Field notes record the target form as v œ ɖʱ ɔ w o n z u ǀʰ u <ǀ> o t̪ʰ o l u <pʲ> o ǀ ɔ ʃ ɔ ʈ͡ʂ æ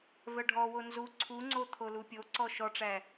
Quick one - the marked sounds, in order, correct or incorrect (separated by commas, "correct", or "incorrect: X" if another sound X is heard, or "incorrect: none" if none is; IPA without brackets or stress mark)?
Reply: incorrect: ŋ͡ǀ, correct